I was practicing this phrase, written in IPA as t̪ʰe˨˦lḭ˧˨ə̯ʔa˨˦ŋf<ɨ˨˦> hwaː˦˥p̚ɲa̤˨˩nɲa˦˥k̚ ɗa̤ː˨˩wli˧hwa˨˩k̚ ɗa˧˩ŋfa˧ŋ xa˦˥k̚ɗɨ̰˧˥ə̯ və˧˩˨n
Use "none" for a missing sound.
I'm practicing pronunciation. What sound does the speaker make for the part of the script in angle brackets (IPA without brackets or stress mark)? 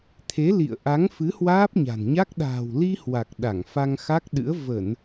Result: ɨ˨˦